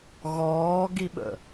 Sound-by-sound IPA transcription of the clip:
ɣ ɔː ɡ i ɓ ə̰

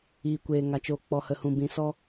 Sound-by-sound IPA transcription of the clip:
iː˨ kʷ eː˨ ŋ a˨ t͡ʃ oː˨ k͡p ɔ˨ h ə˨ h ũ˨ b ĩ˨ s ɔ˧

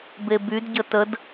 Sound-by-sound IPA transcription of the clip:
b e b y d ɟ ə t ə d

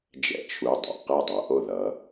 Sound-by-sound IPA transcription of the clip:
d͡ʒ ɛ̰˧ t͡ʃʰ u˩˧˩ dˤ a̰˩˧˩ q ɛ˥˩ dˤ ɤ˩˧ ʔ o˥˩ ð ʌ˩˧

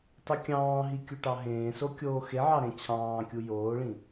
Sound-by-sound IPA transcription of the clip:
tˤ ɯ kʲ ɑ̃ː ɦ i kʲ u ʈ ɑ ɦ ẽː s o kʲ oː x e ʕ ɑ ɾ ẽ t͡ɕʰ ɑ̃ː kʲ u j oː ɭ ĩ

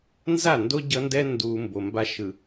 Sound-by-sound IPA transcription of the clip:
n z a˦˨ n d o˦ ɟ ʌ˦ n d ɛ˦ n d u˨ m b o˨ m b a˦ ʃ ɯ˨

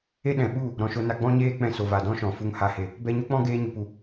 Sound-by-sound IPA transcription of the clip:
e˦ ɗ ɛ̃˨ ɓ u˦˨ | ɾ ɔ̃˨ ʃ o˧ n a˧ ɡ͡b ɔ̃˦ ɲ eː˦ k͡p ɛ̃˧ s o˨ v a˨ d ɔ̃˦ ʃ ɔ̃˨ f u˧ ŋ h a˨ h e˨ | b ɛ˧ ɲ o˦ k͡p ɔ̃˦ ɡ eː˧ ɲ u˨ p u˨

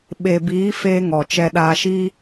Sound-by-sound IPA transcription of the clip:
ɓ e˨ b iː˨˦ f eː˧ ŋ ɔ˨ t͡ʃ ɛ˧ ɗ aː˧ ʃ iː˦

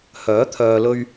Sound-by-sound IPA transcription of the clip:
h œː˨˥ t̪ʰ œː˧ l ɵ˥ ɥ

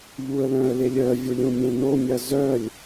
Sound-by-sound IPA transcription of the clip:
ʎ u ə̯ l œ̃ ə̯ l e lʲ œ vʲ u lʲ ũ mʲ ẽ n̪ o mʲ ɐ z œ lʲ

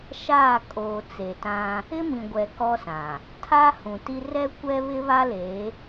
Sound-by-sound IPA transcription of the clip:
ʃ aː˦˨ kʼ oː˨ t͡s e˨ t ã˦ | ɪ˦ m ĩ˨ ɡʷ ɛ˨ k ɔ˦ s ã˨ | tʰ a˦ h ũ˨ t i˦ r ɛ˦ kʷ ɛ˦ β ɪ˦ β a˦ l e˨˦

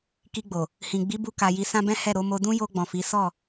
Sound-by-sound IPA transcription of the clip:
k i˧ ɡ͡b o˨ | h ĩ˨ ɡ͡b i˨˦ b u˧ k a˨ j i˨˦ s ã˦ b ɛ̃˦ h ɛ˦˨ ɾ o˨˦ m o˧ d ũ˦ j o˧ ɡ͡b ɔ̃˨ f i˨˦ s ɔ˦˨

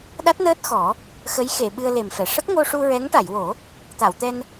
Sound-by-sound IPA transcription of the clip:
ɗ a˦˥ t̚ n əː˦˥ t̚ x ɔ˨˩˦ | x ə˧˥ j x e˨˩˨ ɓ ɨ˧ ə̯ l e˨˩ m f ɛ˨˩˨ ʂ ə˦˥ k̚ ŋ o˧ ʂ u˧ ɹ ɛ˧˥ ŋ ʈ a˨˩˨ j w o˨˩˦ | t̪ a˨˩˨ w t̪ ɛ˧ n

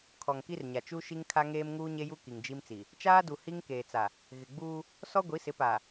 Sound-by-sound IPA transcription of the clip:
kʰ ɔ˨ ŋ k i˦ r ɲ a˨ t͡ʃ u˦ ʃ i˦ ŋ kʰ a˦ ŋ eː˦ m ŋ uː˦ ɲ e˦ j u˦ k i˨ ŋ d͡ʒ i˦ m t͡s i˨ | t͡ʃ aː˦ d u˨ h i˦ ŋ k eː˨ t͡s a˨ | ɣ ɪ˨ ɡ͡b uː˦ | s ɔ˦ ɡʷ i˨˦ s ɪ˨˦ p a˨

